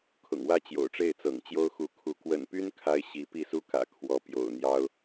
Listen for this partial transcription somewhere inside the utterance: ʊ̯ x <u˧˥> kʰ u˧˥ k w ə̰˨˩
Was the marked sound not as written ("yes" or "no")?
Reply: no